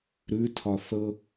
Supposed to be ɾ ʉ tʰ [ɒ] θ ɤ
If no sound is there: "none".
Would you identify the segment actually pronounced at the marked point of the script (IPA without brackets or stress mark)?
ɒ